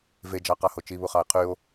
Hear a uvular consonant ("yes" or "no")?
yes